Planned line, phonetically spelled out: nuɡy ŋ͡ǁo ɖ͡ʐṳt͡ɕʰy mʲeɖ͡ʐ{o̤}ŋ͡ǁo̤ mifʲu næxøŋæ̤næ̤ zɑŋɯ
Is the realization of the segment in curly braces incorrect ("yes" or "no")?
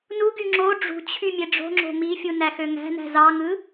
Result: no